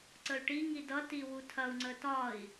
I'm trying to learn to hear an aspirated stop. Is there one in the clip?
yes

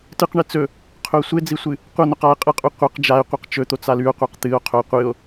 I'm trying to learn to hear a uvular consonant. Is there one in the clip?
yes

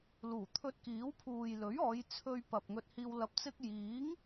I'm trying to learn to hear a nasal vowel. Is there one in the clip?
no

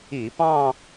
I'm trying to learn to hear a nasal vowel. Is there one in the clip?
yes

